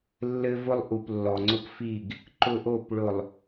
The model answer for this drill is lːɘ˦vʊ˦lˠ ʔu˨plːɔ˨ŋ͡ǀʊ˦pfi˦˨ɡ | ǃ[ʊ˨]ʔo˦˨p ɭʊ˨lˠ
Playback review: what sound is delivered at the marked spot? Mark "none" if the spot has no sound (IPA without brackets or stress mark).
ʊ˦